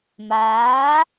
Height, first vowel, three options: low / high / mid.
low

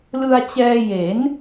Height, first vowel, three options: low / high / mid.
high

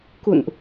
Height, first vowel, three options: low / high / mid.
high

